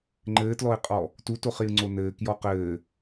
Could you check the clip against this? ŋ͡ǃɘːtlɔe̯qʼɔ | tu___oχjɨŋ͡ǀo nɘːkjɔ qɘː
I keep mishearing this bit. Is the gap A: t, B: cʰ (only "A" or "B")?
A